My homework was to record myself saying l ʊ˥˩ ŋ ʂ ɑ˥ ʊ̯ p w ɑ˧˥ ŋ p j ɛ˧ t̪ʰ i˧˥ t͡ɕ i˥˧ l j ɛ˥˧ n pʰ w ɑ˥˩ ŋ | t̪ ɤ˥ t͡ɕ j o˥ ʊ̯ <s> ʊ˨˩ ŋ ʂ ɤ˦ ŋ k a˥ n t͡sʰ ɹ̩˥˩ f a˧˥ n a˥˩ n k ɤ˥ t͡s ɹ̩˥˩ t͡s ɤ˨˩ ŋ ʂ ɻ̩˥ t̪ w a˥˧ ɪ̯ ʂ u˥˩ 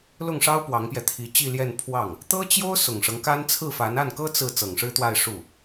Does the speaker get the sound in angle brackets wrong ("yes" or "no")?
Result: no